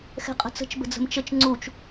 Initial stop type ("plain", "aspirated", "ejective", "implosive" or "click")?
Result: ejective